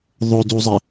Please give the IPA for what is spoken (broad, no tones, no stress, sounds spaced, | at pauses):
ðˤ o d u zˤ ɪ